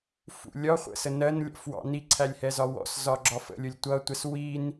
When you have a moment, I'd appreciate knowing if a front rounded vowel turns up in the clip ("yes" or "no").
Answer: no